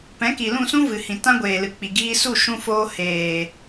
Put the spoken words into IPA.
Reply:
p ɛ̃˨˦ k i˨ l ũ˦˨ s ũ˦ v ɨ˨ h ĩ˨ t ã˦ ɡʷ eː˨ l ɨ˨ k͡p i˨ ɡ iː˧ s u˦˨ ʃ ũ˧ f oː˧ h eː˨

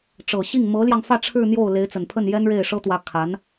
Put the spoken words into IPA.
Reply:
ʈ͡ʂ ɤ˨˩ ɕ i˥˩ ŋ m ɤ˧˥ l j ɑ˧ ŋ f ä˥˧ ʈ͡ʂʰ ɻ̩˥˧ n̪ j o˥˩ ʊ̯ l e˧˥ ɪ̯ t͡s ə˨˩ n pʰ ə˥˩ n j ɛ˥ n ɻ e˥˩ ɪ̯ ʂ ɤ˥ t̪ w ä˧˥ kʰ a˧˥ n

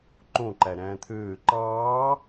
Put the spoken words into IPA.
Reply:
ǃ õ ǃ æ ɾ æ̃ː t̪ʰ øː ǃ ɑː

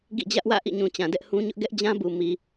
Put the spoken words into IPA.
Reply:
ɡ ḭ˦˨ d͡ʑ ä˦ ʔ w ä̰˦˨ ʔ ḭ˦˨ ɲ ũ˨ t͡ɕ ã˨ d ɛ˦ ʔ h ũ˦ ɲ ʊ˦ ʔ ɡ ɛ˦ ʔ d͡ʑ ã˦ b u˨ m i˨

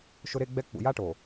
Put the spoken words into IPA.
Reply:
ʃ ʊ˦ ɾ e˦ ɡ͡b ɛ˦ k͡p ṵ˨ j a˦ ʈ o˨

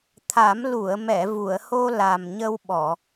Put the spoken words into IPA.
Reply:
t̪ʰ a˨˩˦ m l u˨˩˨ ə̯ m ɛ˨˩˨ v u˨˩˨ ə̯ h o˧ l a˨˩ m ɲ ə˧ w ɓ ɔ˨˩˨

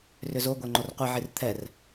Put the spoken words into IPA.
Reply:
r ʏ z o ɡʷ ɛ ŋ͡ǃ o r qʷ i ʕ i r t̪ʰ ɛ r

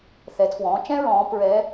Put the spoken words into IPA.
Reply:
θ ɛ˩˧ tʰ w ɔ̃ː˩˧ t͡ʃ ɛ̃˧ ɹ ɔ̃ː˩˧ p ɹ ɛ˧˥

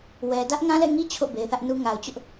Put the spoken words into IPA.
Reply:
w ɛ˨ d ä˦ ʔ ŋ ã˦ l ɛ̰˦˨ ŋ i˦ t͡ɕʰ o̰˦˨ b e˨ ɪ̯ θ ä˦ ʔ n u˦ ŋ a˨ ʊ̯ t͡ɕ ʊ˦ ʔ

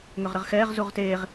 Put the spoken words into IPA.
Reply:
ŋ ø ʁ ɾ ə ʁ x ɛː ʁ z u ʁ t eː ʁ

